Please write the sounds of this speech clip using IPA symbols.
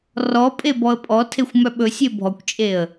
r ɔ pʼ e b ɔ ə̯ pʼ ɔ tʰ e xʷ m œ ɓ ɵ sʲ e bʱ ɔ kʷ t͡ʃʼ e ə̯

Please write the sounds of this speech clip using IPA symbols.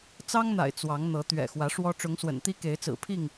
t͡s ɑ˦ ŋ n̪ a̰˨˩ ɪ̯ t͡s w ɑ˨˦ ŋ n̪ ɤ˨˦ t̪ ɥ ɛ̰˨˩ x w ä˨˦ ʂ w ɔ˦ ʈ͡ʂ ʊ˨˦ ŋ s w ə̰˨˩ n t̪ i˦ k e˨˦ ɪ̯ t͡s ɹ̩˨˩ pʰ i˥˨ ŋ

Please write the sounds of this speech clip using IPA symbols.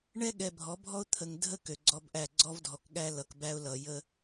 ɳ ɛ˦ ɠ ɛ˨ bʱ ɔ˨˦ bʱ ɔ˦ ʊ̯ t̪ʰ ə˨ ŋ dʱ ə˦ k ø˨ ɡ͡ǀ ɔ˦ b ʔ æ˦˨ ɡ͡ǀ ɔ˦ v dʱ ɔ˨ k ɠ æ˦ l ʌ˨ k b æ˦ ʊ̯ l ʌ˨ j ə˦

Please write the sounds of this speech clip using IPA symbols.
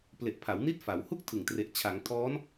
p l e˨˩ ʔ pʰ a˩˦ w n i˦˥ t̚ f a˩˦ w h u˥˩ k̚ tʰ ɯ˨˩ ŋ t r e˨˩ ʔ t͡ɕʰ a˩˦ ŋ tʰ ɔː˦˥ n

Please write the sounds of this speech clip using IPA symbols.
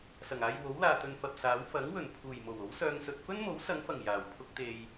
s ɐ˨˩ ŋ aː˧ j w o˨˥ w l aː˨ t̪ ɵ˧ n f ɐ˨ p̚ s aː˨˥ w f ɐ˨˥ ŋ w ɵ˨˩ n pʰ uː˨˩ j m o˨˩ w o˨˥ w s œː˧ ŋ s ɵ˧ t̚ f ɵ˥ n m o˨˥ w s ɐ˨˧ ŋ f ɐ˨˩ ŋ j aː˨˩ w pʰ ʊ˥ k̚ t̪ e˧ j

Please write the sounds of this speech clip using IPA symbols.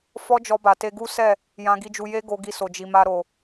f ɔ˦ d͡ʒ ɔ˧ b a˨ t e˧ ɡ u˦ s ɛ˦˨ | j ã˧ ɡ i˧ d͡ʒ u˧ j e˦ ɡ o˧ ɡ i˧ s o˨ d͡ʒ i˨ m a˧ ɾ o˨

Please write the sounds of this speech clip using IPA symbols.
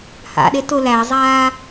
h a̰ ɗ e t ʊ l æ zˤ aː

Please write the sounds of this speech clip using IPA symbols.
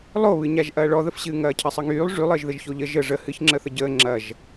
lˠ o β ɨ ɲ a ʒ ʔ ɐː ɭ ɔ ð ə f ɕ ɨː ŋ ɐː cʰ ɐ sˤ ə ŋ yː lˠ ʐ y lˠ əː ʒ ð ə ʒ ç o ʎ ə ʒ ə ʐ ə h ɨ ç ŋ͡ǁ ə θ ə ɟ əː ŋ͡ǁ ɐ ʒ

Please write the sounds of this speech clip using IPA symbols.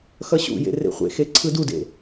x ʌ ɕ ṵ j ḛ r ḛ χʷ ḛ x e ǀʰ ɯ d u d ḛ

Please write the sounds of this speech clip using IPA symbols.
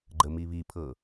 ɡ͡ǃ ə m i β i pʰ ɤ

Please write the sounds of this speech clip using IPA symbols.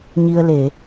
ɲ i˧ ə̯ l e˧˩˨

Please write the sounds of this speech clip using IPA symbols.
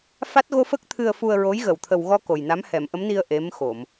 f a˦˥ t̚ ɣ o˧ f ə˦˥ k̚ t̪ʰ ɨ˧ ə̯ f u˧ ə̯ ɹ o˧˥ j ɣ ə˨˩ w t̪ʰ ə˨˩ w ɣ ɔ˧ k o˨˩ j n a˧˥ m h ɛ˨˩˨ m ʔ ə˧˥ m n i˧ ə̯ ʔ e˧˥ m x o˨˩˨ m

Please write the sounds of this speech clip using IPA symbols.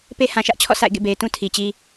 p e˦ h ã˨ ʃ ä˦ ʔ t͡ɕʰ ɔ̰˦˨ s a̰˦˨ ɪ̯ ɡ ḛ˦˨ b e˨ ɪ̯ t ũ˦ tʰ i˨ t͡ɕ i˦

